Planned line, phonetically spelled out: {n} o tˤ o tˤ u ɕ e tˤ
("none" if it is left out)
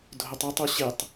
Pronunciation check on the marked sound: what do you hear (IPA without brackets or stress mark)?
dʱ